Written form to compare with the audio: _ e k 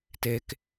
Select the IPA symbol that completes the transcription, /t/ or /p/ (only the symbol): t